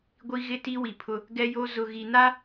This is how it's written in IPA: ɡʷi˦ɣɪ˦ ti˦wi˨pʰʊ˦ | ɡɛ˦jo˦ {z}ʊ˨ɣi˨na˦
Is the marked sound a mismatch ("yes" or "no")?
no